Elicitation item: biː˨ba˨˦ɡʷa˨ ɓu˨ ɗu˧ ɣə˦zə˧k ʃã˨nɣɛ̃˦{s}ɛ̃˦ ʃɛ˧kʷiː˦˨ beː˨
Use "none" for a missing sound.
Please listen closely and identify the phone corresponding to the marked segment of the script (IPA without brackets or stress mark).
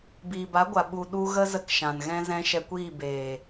z